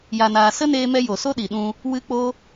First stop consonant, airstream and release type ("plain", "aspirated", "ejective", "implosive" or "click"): implosive